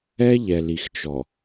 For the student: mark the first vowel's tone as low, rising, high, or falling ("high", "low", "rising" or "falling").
high